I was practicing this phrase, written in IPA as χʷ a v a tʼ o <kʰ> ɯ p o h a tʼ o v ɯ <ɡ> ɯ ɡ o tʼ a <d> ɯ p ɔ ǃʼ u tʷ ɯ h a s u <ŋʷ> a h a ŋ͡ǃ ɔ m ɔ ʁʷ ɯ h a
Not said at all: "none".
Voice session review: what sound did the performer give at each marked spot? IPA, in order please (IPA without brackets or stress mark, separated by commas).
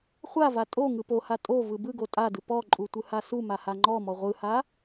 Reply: ŋ, b, d, m